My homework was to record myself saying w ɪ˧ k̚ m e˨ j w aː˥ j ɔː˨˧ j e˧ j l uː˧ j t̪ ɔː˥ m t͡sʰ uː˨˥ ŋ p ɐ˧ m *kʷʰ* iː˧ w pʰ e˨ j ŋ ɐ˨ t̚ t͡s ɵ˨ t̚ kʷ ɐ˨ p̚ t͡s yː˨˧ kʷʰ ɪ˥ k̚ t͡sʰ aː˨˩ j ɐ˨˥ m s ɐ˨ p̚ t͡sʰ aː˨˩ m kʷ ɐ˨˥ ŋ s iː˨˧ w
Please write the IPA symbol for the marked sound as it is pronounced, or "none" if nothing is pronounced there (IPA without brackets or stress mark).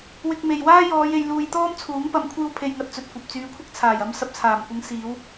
kʷʰ